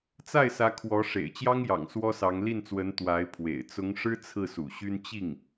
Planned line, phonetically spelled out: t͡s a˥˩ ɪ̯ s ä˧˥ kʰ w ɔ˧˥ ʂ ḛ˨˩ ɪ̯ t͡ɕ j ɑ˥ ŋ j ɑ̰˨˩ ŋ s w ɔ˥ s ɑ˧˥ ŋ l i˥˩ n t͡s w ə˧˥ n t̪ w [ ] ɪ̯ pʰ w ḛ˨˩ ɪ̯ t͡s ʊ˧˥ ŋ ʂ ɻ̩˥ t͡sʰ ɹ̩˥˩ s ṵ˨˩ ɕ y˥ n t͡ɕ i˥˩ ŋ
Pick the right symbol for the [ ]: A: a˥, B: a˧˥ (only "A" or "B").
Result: B